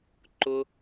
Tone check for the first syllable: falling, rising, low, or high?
high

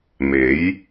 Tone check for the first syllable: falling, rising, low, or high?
rising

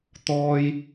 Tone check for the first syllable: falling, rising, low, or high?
high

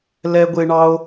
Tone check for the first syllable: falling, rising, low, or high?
high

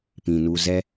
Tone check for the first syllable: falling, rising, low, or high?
low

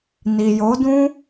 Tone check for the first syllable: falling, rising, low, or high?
low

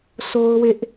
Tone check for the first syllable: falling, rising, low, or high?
high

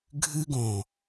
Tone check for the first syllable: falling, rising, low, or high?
high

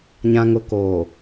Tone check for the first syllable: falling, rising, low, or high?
low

